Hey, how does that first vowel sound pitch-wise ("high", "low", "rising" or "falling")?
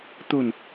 low